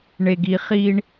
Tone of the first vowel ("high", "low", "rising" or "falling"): low